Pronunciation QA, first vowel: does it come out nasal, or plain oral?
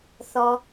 oral